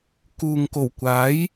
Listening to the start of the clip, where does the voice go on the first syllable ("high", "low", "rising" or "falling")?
low